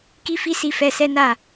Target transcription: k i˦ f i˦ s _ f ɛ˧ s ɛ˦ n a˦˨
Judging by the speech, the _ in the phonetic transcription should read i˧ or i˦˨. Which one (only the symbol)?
i˧